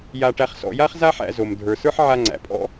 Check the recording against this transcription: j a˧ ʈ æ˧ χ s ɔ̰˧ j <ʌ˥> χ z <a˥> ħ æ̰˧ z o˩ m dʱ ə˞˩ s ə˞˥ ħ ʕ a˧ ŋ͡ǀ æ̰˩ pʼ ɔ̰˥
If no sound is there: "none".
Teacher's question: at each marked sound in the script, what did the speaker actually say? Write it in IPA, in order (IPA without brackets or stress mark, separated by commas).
a˥, a˥